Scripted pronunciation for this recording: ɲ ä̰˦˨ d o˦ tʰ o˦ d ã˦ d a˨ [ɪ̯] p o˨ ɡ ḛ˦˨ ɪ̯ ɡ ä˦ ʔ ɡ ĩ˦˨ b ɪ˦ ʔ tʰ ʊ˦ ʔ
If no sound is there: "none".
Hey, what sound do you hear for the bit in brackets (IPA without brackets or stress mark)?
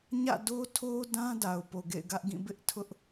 ʊ̯